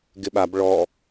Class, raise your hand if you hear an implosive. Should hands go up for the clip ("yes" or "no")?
yes